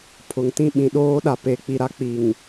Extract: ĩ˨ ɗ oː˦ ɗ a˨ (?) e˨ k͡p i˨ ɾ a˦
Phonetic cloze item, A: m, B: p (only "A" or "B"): B